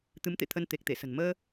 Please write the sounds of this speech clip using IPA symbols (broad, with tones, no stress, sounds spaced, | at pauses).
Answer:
t̪ ɨ˨˦ m t̪ ḛ˧˨ t̪ʰ ə˧ n t̪ e˨˩ k̚ t̪ e˧˩ s ə̤˨˩ n m əː˧